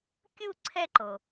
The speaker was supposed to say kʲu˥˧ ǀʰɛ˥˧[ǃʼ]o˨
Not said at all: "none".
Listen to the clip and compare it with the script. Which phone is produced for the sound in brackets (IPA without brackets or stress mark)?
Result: ǃ